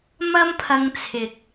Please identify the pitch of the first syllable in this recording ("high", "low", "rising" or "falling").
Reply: high